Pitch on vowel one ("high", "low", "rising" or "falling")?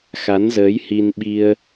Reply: rising